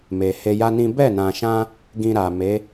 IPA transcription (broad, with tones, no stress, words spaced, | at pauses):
me˨he˧ja˦nĩ˦ bɛ˦˨nã˨ʃã˧ | ɡĩ˧ɾa˨me˨˦